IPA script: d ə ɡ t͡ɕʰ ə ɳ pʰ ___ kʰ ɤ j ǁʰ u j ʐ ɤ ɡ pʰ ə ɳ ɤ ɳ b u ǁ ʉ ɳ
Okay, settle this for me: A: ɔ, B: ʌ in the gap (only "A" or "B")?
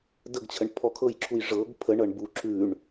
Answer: A